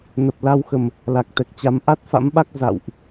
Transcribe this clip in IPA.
n ə˨˩ p̚ l a˧ w x ə˨˩ m | l a˨˩ k̚ t̪ ɛ˨˩ k̚ t͡ɕ a˨˦ m ʔ a˦˥ t̚ f a̰˧˥ m ɓ a˦˥ k̚ z a̰˧˨ w ʔ

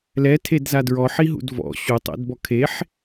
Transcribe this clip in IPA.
l ɛ tʰ e d z a d ɹ ɔ ħ i ɦ ṵ d v ɔ̰ ɕ u tˤ ɛ̰ d b ɔ kʰ e ħ

